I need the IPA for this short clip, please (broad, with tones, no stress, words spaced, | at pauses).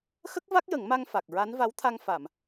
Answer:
xə˦˥k̚va˦˥k̚jə˨˩˦ŋma˧ŋ fa˨˩k̚ɹa˧˥n va˧˥wt̪ʰa˧ŋ fa˨˩˨m